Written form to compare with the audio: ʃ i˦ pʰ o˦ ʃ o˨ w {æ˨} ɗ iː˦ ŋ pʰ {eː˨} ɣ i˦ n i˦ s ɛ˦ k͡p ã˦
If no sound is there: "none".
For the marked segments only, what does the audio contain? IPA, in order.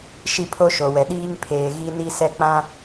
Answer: ɛ˨, eː˨

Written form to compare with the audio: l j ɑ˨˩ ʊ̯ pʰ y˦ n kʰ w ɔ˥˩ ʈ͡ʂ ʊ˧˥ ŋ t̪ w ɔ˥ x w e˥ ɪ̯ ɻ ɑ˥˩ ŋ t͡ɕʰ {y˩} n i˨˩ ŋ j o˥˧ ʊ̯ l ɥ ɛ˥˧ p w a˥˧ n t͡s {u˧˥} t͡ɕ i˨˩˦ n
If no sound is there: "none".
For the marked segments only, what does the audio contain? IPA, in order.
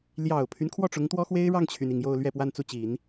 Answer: y˩, u˥˩

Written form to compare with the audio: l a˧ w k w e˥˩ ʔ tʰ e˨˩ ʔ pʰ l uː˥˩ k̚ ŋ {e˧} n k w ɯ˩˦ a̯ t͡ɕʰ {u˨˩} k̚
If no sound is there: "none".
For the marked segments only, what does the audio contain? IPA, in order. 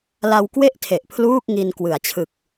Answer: i˧, ɯ˨˩

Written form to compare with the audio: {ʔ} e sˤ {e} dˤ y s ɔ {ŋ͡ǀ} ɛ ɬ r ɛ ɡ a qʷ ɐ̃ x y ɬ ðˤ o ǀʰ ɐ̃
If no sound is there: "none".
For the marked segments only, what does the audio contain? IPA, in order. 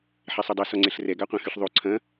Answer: ħ, ø, ŋ͡ǀ

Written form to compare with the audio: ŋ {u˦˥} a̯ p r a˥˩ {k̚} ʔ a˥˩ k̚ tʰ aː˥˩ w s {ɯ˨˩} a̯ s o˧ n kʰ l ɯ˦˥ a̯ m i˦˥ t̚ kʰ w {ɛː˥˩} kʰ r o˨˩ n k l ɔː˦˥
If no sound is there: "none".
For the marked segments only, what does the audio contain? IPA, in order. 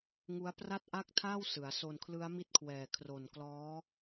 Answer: u˦˥, t̚, ɯ˩˦, ɛː˨˩

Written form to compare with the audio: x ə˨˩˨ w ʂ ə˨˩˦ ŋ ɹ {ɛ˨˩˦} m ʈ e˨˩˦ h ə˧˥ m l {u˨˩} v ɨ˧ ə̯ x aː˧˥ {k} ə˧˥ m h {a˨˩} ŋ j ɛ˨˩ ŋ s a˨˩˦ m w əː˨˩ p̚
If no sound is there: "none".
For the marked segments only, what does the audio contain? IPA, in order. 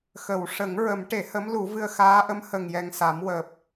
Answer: ə˨˩˦, u˨˩˦, ʔ, ə˨˩

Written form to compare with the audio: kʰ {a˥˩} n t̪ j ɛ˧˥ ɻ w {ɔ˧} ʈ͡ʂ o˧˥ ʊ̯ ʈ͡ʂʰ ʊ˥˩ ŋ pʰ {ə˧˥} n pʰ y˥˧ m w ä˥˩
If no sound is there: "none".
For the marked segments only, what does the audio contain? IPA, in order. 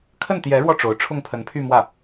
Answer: ə˥˩, ɔ˧, ə˧˥

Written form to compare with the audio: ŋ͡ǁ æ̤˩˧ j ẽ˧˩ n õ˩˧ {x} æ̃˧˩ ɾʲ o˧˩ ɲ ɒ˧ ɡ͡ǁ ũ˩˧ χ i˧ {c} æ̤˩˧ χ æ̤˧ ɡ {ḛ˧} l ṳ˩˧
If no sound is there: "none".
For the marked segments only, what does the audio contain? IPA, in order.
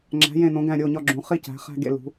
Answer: ɡ, c, ḛ˧

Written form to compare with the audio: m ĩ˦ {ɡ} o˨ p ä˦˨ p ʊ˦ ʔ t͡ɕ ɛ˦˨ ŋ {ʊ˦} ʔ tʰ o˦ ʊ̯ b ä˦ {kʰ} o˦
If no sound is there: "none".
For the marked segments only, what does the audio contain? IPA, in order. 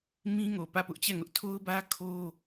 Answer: ŋ, ʊ˦, kʰ

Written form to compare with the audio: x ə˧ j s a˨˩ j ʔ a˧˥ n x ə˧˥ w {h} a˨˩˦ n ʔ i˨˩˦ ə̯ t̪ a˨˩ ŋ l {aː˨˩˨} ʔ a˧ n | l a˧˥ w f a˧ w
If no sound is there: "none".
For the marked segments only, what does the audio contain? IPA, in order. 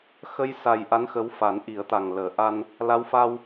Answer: f, əː˨˩˨

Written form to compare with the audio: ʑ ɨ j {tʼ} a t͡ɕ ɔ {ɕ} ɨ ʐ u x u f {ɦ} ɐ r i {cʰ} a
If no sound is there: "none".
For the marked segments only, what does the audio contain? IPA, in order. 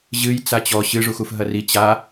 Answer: t͡s, ɕ, ɦ, t͡ɕ

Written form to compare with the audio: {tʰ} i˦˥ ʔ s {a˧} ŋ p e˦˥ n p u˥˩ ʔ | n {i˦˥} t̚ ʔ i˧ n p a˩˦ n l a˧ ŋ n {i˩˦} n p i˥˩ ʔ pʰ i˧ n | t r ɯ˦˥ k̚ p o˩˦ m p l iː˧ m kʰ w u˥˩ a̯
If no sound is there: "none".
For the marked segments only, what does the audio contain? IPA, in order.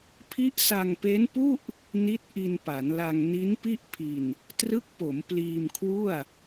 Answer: pʰ, a˧, i˦˥, i˦˥

